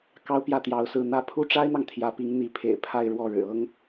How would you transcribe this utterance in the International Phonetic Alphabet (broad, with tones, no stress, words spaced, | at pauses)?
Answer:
kɑ˥ʊ̯pjä˥˩t̪jɑ˧˥ʊ̯sɹ̩˥˩ n̪ä˥ pʰu˥ʈ͡ʂa˥ɪ̯n̪ɑ˨ŋ t̪ʰjä˧˥pi˧˥ŋ n̪i˧˥ pʰḛ˨˩ɪ̯ pʰa˥˧ɪ̯ ɻwɔ˥˩ɻɻ̩˨˩ɤ˥ŋ